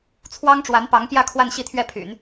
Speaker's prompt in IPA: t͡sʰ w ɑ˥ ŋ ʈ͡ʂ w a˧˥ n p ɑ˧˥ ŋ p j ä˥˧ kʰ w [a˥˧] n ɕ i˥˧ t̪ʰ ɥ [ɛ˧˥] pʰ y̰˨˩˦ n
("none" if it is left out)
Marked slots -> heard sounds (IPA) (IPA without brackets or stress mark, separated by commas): a˥˧, ɛ˥˩